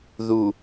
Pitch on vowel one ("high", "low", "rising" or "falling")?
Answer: low